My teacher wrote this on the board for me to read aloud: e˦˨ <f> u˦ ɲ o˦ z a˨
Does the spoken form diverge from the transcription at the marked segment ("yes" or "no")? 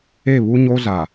yes